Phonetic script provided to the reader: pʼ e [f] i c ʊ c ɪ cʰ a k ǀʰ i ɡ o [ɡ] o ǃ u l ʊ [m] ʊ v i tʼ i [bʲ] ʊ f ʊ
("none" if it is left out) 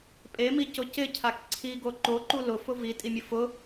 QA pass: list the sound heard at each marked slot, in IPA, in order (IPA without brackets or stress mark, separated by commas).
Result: m, ǃ, f, mʲ